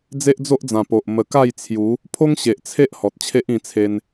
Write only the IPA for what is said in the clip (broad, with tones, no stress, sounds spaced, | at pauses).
d͡z e˦ ʔ d͡z o˦ ʔ d͡z ã˨˩ p o˨ ʔ m ə˨˩ k a˥˧ j t͡sʰ j u˨˦ | pʰ o˦ ŋ ɕ e˨ ʔ t͡sʰ e˦ ʔ h ɔ˨ t̚ t͡ɕʰ e˦ ʔ ĩ˧ t͡sʰ e˧ n